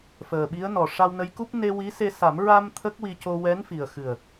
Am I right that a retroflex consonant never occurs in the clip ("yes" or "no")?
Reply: no